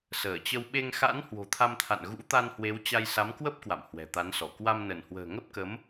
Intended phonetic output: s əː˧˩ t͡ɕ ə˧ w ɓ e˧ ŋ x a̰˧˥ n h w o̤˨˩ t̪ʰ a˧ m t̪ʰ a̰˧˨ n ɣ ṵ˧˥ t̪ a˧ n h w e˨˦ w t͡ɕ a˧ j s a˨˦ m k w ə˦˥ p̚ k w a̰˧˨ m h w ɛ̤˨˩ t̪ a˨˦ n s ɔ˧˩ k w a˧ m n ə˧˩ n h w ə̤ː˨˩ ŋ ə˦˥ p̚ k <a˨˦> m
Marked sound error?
yes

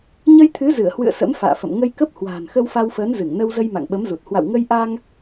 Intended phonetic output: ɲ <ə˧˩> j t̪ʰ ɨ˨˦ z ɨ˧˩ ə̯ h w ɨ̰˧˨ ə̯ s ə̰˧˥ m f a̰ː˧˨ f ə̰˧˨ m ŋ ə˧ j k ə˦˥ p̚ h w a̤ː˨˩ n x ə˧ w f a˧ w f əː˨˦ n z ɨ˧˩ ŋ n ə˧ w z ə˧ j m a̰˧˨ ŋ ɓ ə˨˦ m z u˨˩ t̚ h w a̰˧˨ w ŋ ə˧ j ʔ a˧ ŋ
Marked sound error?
yes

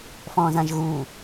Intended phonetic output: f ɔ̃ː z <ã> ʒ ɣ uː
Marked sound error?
no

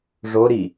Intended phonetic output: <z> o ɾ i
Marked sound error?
yes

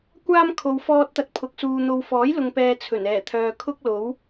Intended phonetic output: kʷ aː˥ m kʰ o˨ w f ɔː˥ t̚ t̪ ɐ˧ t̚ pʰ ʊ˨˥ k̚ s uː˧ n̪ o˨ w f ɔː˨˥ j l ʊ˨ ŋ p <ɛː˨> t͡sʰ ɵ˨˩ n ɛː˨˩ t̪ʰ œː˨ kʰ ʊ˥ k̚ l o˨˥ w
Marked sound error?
no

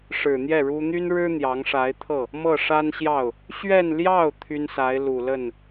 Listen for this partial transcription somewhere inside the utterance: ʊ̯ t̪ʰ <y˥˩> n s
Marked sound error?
yes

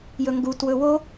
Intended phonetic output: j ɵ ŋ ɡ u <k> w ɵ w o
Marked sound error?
yes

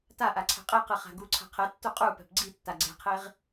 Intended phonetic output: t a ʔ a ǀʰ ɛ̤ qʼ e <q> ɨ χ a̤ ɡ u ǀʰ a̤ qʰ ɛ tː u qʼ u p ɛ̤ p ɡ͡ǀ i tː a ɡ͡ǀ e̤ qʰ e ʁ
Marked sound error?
no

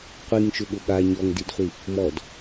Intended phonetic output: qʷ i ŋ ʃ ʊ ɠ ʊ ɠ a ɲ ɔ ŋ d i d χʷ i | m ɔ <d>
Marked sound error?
no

